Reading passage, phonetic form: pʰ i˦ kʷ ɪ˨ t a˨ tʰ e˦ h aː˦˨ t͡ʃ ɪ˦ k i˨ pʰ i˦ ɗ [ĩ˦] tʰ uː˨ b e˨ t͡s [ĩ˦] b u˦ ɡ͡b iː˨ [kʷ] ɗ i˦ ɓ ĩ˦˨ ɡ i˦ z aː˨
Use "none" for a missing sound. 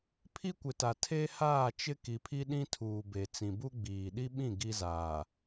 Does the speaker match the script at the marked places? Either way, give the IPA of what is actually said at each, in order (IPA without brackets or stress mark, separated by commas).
ĩ˦, ĩ˨, none